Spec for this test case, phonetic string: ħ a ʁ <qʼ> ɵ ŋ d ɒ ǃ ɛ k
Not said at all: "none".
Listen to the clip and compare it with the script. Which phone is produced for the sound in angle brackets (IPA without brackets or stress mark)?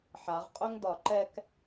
qʼ